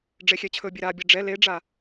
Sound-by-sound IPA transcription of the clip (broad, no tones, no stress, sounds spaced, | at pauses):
ɖ͡ʐ e xʲ ɛ t͡ɕʰ ɵ bʲ e ɾ a bʲ e ɖ͡ʐ ɛ l e ɖ͡ʐ a